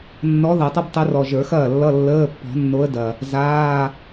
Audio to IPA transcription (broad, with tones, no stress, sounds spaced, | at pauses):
nː ɔ˧˥ ð ʌ˨˩˦ tˤ ʌ˥ b tˤ ə˧˥ r ɔ˨˩ ʒ ə˞˨˩˦ x ɐː˥˩ lː ʌ˧˥˧ lː əː˧˥˧ pː ɔ̤˨˩˦ nː o˧˥ ə̯ d ɐ˨˩ | z aː˧˥˧